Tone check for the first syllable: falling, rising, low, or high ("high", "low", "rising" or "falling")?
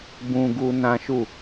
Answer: high